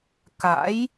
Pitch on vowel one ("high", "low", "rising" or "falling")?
rising